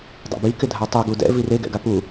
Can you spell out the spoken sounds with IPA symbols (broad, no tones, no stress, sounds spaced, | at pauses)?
dˤ ɛ̰ b i k ɪ dʱ a tˤ u ɡ u d ɛ̰ v i r e ɡ ɛ̰ ɡ a p u